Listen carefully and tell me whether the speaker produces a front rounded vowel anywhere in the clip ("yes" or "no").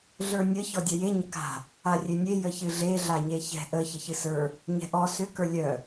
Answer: yes